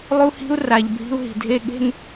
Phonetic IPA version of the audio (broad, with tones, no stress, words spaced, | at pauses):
lˠu˦hi̤˦u̯ ra˨ʎ bʱi̤˦u̯ɦi̤˨dʱe˦ ɠe̤˦n